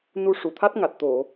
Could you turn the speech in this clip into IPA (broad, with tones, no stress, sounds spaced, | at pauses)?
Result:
n u˧ ʂ u˨˩˨ t̪ʰ a˦˥ t̚ ŋ a˨˩ t̚ t̪ o˨˩˨